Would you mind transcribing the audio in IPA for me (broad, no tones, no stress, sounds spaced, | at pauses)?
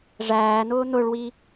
ʐ æː n̪ ʊː n̪ ʊ ɭ w i